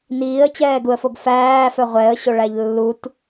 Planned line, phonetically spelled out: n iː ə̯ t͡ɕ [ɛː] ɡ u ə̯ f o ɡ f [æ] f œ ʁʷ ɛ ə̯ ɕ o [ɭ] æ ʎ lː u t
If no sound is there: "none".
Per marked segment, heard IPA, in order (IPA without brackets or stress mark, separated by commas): ɛː, æː, ɭ